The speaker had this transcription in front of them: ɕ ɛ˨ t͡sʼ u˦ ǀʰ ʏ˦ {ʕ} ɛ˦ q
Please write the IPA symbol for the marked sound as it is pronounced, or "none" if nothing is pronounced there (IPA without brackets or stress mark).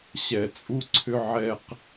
ʕ